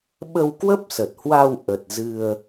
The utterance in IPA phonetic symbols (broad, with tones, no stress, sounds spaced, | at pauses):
ɓ ə˧ w k w ə˦˥ p̚ s ə˨˩ t̚ h w a˧ w ʔ ə˨˩ t̚ z ɨ˧ ə̯